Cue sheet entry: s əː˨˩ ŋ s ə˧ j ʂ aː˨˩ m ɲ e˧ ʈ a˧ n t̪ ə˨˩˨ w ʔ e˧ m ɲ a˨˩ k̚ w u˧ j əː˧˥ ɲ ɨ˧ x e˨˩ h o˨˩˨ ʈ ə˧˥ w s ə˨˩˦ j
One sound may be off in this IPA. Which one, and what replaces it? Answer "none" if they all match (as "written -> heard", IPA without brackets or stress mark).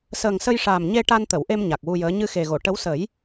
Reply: h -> ɣ